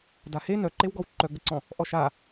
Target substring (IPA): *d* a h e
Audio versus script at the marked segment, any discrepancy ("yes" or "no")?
no